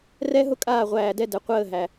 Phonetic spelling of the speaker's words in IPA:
r ɛ˦ ɦ ʊ˦ kʼ aː˦˨ ʁʷ æː˧ d ɛ˦ d ɛ˧ qʷ əː˦˨ ɦ æ˨

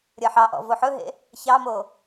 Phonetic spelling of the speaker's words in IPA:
ɾʲ ə ħ ɑ ʔ ɔ̰ v o ħ ɵ ɦ ḛ | ç ɑ m o

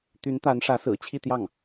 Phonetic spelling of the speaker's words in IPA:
t̪ y˧˥ n t̪ a˧˥ n ʂ ä˧˥ s ɹ̩˨˩ t͡ɕʰ i˥˧ t̪ j ɑ˥˩ ŋ

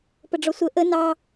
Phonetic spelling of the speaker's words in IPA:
p ə ɖ͡ʐ ɔ sʷ ə ʔ ə n ɑ

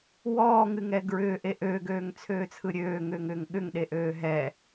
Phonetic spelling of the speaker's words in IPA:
w ɔː ŋ ɨ ŋ ɛ ɡ ɹ ʏː ʔ e ʔ øː ɡ øː ŋ t͡sʰ øː t͡sʰ ɯ ɾʲ øː ŋ ʏː ŋ ʏː ŋ ɠ ʏ ŋ ɗ e ʔ øː ɦ ɛ

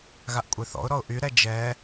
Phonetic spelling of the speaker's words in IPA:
ɣ a ʔ kʷʼ e θ ɔ̰ ʊ̯ ɾ ɔ ʊ̯ ʔ y ɾ ɛ d͡ʒ ɛ

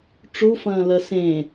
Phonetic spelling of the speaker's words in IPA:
ʈ͡ʂ u f ɐ̃ː l ɐ s ẽ

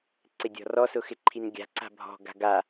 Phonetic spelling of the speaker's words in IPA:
ǀ ɪ dʲ ɔ̤ r ɔ s ʊ x ɪ ǃʰ i n ɡʲ a̤ ǀ a̤ bʱ ɔ̤ ɡ a̤ ɡ a

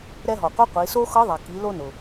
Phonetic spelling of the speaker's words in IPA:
ɾ ɛ˧ ɦ ɔ˩ qʷ ɜ˧˥ qʷ i˩˧ s o˥ x ɤ˧˥ ðˤ ɛ˩ k i˩˧ l o˧ n ʊ˩

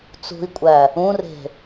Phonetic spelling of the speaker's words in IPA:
t͡s ṳ i̯ kʷʼ æ | ũ r e̤

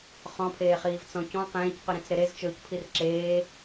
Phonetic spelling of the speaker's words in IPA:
χ ɔ̃ pʰ eː χ iː v t͡s ɔ̃ c ɔ̃ q ẽː c q ʉ ɾ ĩ t͡s ɾ e ɾ e z t͡ʃ ɵː c pʰ i r ǁ eː

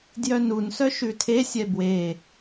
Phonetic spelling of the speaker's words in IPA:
d j œ n u n s œ ʃ ʉ tʰ e sʲ ɛ b w e

